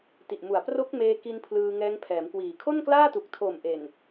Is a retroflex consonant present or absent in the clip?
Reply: absent